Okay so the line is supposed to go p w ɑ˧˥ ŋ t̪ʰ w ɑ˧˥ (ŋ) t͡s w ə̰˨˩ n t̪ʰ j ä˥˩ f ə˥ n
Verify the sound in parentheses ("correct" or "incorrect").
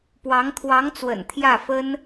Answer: correct